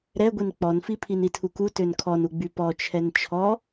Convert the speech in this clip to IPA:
ɾɛɡʷin k͡pɔnfipʰin itʰuku tønkʰɔnuɡ͡by pɔt͡ʃʰɛn t͡ʃʰɔ

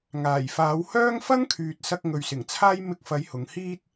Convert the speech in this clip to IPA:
ŋaː˨˩j faː˨˧whœː˥ŋ fɐ˥ŋkʰyː˨t̚sɐ˧k̚ ŋɵ˨ɥsɪ˨˩ŋt͡sʰaː˥j mɪ˧k̚fɐ˨˧j hʊ˨˧ŋ hiː˥t̚

